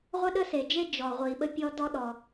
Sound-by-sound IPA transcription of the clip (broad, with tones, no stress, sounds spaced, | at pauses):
ʁʷ ə˥ ɗ ə˥ s e˩ d͡ʒ e˥ d͡ʒ ɔ˩ ʁʷ i˩ ɓ ə˥ pʲ ɔ˥ d ɔ˥ ɗ ɔ˩